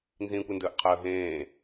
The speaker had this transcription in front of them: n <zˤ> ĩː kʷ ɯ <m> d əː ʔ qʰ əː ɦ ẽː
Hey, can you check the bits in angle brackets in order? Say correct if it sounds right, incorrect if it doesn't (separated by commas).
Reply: incorrect, incorrect